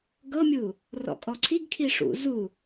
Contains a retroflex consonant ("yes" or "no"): yes